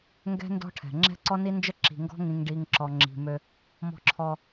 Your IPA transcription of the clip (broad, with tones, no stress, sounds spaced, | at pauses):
ŋ ɡ ɛ̤˦ n d ɔ̤˦ ʈʰ ɛ̤˨ ŋ͡ǁ ɛ̤˦ ǀ ɔ˦ n i˦ n d͡ʒ ə˦ ǁ i̤˨ ŋ ɡ ɔ̤˦ ŋ ĩ˨ ŋ ɖ i˨ ŋ ǁ ɔ˨ ŋ͡ǁ i̤˨ m ø˦ | m ɔ̤˦˨ ǁʰ ɔ˦